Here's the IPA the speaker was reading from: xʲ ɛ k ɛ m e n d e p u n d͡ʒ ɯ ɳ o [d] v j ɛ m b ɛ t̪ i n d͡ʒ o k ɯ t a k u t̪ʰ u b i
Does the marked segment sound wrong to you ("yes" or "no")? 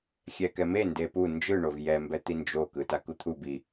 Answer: yes